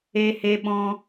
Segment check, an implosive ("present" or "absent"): present